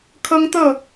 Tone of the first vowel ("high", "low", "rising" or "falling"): high